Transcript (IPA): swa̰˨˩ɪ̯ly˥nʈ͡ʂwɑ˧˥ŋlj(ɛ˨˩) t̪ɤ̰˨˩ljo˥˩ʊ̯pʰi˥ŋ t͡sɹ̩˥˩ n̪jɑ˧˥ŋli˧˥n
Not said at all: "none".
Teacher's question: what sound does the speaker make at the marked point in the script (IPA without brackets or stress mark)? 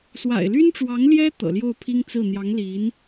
ɛ˥